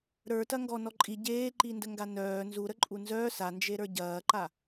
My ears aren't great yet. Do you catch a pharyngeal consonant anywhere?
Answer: no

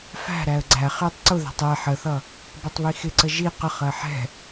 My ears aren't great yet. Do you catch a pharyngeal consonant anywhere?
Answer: yes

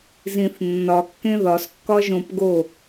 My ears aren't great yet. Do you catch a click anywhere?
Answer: no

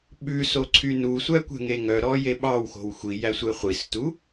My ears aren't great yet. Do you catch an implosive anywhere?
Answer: yes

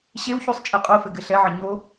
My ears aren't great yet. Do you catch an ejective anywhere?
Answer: yes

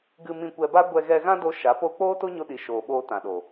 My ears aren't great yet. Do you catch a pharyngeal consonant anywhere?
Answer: no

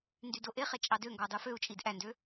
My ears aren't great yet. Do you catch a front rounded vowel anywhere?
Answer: yes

